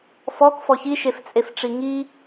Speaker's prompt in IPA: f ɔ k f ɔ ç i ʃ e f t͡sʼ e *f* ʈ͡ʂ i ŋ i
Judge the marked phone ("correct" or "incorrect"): correct